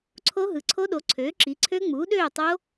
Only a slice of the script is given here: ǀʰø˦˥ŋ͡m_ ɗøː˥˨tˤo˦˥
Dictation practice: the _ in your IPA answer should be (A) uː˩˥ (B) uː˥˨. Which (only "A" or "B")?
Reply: A